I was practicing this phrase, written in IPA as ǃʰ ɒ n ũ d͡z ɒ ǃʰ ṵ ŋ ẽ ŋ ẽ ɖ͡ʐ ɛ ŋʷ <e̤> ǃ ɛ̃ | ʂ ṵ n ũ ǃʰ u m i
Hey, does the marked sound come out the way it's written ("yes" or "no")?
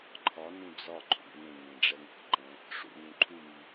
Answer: yes